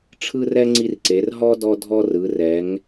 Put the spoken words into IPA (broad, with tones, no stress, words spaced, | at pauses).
ʈ͡ʂʰɯ˥rɛ˥ ŋ͡ǀi˥rǀe˨˦r ɦɔ˥ dɔ˥ dʱɔ˥rɯ˨˦rɛ˨˦ŋ